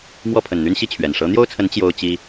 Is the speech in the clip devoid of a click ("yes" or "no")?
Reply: yes